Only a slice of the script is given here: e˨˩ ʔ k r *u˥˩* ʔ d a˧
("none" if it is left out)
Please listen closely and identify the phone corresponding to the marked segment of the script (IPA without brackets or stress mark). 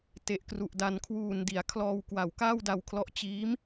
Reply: u˨˩